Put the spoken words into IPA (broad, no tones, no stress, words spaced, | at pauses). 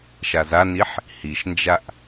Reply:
ʃazaniħ | hiʃnd͡ʒaʔ